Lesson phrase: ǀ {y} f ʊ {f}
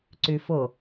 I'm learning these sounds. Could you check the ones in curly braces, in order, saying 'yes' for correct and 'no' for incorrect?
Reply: yes, no

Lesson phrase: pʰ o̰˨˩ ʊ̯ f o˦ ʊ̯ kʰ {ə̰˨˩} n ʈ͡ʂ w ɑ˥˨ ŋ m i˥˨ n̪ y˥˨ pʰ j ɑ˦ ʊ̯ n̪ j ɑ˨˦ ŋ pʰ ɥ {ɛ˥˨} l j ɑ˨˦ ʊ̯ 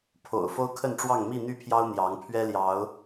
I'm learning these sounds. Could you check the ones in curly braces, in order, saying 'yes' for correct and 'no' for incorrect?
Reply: no, no

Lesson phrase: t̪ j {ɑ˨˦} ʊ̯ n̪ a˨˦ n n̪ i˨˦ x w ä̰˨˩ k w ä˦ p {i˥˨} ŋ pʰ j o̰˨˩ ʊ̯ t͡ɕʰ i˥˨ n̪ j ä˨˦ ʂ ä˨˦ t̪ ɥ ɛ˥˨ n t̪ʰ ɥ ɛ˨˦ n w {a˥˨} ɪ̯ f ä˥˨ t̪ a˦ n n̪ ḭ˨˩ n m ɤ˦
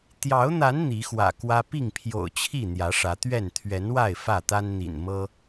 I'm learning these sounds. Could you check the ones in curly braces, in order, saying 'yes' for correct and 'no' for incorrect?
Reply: yes, yes, yes

